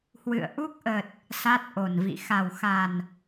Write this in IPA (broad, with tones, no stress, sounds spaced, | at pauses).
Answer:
h w ɨ̰˧˨ ə̯ ʔ u˦˥ k̚ ʔ ə˨˩ t̚ | s a˦˥ t̚ ʔ o˨˩ n v ḭ˧˨ x a˨˩ w x a˨˩ n